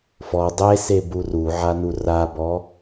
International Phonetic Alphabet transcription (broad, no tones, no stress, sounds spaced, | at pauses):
f ɔ dˤ e s e b u r u ʕ a n u r a b ɔ